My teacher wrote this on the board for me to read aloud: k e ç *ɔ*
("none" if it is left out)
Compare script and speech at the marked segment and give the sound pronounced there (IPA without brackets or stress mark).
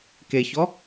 ɔ